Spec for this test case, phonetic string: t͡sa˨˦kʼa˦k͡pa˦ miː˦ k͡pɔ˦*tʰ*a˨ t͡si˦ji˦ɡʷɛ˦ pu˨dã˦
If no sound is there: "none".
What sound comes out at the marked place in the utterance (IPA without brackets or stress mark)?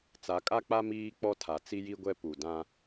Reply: tʰ